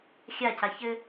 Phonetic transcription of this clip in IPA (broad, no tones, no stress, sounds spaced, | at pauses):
xʲ a c a ç ɘ